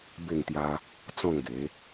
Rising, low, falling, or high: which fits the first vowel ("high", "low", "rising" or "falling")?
falling